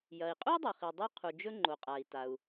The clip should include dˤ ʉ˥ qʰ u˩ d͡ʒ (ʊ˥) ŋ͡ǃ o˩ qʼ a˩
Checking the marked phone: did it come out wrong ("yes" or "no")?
yes